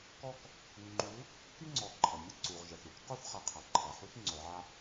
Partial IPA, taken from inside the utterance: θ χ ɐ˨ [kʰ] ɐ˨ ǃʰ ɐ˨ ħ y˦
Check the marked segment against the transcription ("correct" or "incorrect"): incorrect